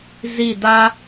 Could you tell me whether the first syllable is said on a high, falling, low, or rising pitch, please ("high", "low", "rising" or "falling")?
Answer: falling